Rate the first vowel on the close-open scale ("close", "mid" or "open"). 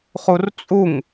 close